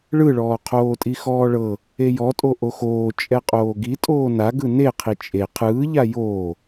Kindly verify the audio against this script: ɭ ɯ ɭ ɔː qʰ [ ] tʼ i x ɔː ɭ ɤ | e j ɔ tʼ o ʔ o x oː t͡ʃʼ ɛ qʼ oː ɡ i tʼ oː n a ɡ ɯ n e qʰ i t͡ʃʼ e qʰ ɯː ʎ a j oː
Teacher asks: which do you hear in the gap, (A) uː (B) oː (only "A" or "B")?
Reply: B